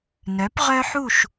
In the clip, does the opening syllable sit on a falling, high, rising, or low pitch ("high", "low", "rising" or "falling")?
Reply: rising